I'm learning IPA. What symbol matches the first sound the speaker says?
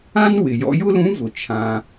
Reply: ã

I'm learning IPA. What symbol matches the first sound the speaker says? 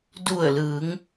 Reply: d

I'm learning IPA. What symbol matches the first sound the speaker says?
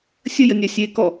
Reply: sʲ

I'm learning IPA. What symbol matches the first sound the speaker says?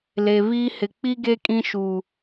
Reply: l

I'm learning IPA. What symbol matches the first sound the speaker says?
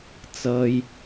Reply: t͡s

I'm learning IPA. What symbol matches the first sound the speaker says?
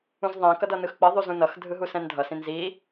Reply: ũ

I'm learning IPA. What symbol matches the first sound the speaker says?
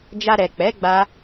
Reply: d͡ʒ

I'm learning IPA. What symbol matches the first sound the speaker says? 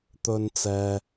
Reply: t̪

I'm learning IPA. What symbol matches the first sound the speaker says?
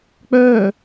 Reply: k͡p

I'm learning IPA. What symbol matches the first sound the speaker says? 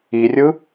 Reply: i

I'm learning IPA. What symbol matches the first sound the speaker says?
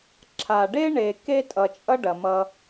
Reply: ǁʰ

